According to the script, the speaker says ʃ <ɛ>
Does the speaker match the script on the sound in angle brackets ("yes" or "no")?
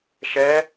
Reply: yes